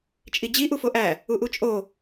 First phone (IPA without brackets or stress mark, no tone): t͡ʃʼ